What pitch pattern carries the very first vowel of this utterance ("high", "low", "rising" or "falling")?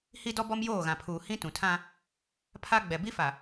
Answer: high